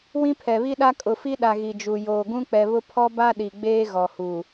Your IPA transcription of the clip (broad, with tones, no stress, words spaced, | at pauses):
wĩ˦pʰɛ˨βi˦ɗa˦ kʼʊ˨fi˦ɗa˨ ɣi˨d͡ʒu˨ joː˨ɡũ˦k͡pɛ˨βʊ˦ pʰɔ˦ba˦ɗi˨ ɡ͡beː˦ɣɔ˨huː˨